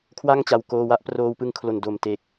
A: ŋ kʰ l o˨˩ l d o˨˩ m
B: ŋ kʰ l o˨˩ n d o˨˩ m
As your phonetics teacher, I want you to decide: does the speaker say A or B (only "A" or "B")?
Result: B